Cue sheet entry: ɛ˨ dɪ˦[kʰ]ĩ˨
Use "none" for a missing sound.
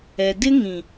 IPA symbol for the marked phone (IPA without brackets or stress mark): ŋ